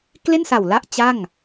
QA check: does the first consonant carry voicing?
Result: no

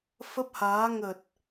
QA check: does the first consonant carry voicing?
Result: no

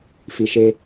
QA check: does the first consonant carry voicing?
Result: no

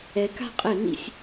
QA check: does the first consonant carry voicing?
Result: no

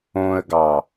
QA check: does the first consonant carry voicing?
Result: yes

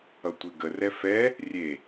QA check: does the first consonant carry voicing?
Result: no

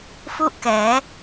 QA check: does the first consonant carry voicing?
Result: no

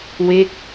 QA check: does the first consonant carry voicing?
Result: yes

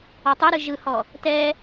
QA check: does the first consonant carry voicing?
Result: no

